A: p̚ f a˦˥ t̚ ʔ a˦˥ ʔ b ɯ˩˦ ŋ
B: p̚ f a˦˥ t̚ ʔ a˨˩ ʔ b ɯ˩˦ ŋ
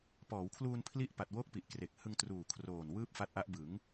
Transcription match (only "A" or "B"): A